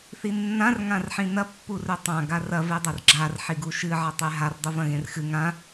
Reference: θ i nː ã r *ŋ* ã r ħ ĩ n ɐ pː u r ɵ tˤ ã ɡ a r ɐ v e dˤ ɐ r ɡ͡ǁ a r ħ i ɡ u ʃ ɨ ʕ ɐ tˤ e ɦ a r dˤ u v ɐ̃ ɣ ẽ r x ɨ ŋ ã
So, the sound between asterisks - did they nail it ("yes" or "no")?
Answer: yes